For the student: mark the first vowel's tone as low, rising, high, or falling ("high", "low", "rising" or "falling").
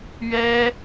high